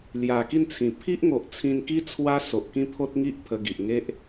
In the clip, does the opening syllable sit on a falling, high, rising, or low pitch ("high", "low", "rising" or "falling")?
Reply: low